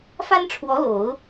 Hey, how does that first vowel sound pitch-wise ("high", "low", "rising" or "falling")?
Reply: high